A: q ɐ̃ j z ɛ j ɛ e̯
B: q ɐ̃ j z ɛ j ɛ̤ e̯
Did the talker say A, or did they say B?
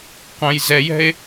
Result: B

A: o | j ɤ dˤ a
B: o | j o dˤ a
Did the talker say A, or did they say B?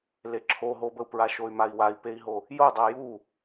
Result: B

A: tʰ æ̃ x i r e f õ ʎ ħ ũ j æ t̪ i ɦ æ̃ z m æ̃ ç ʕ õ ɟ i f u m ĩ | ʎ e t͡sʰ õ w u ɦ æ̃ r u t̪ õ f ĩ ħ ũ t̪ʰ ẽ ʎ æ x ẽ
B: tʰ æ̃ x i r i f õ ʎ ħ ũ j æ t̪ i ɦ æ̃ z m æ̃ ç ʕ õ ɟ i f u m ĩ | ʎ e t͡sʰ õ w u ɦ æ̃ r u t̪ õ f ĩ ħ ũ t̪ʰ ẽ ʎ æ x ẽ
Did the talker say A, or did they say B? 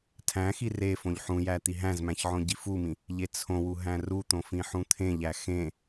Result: A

